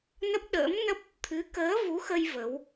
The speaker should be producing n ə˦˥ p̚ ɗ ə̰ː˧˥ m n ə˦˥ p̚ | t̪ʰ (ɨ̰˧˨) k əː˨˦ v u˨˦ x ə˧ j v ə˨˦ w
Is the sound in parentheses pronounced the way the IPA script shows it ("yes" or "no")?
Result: no